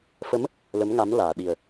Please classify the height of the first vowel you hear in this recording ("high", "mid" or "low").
mid